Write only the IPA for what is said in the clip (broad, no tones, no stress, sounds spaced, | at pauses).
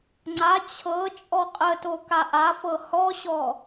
ŋ͡ǀ a t͡ɕʰ ɤ t͡ʃʼ ɔ qʼ ə t o k a ʔ a f ɤ h ɔ ɕ ɔ